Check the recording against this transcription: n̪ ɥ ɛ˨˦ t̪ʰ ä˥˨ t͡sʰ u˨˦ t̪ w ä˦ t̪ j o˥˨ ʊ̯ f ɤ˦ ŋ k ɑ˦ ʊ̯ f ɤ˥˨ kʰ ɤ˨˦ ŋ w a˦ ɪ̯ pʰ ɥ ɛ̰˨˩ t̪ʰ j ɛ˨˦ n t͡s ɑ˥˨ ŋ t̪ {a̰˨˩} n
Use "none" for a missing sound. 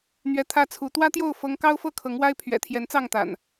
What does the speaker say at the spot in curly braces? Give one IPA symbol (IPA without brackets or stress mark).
a̰˨˩